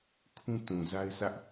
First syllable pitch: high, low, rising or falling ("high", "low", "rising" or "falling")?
high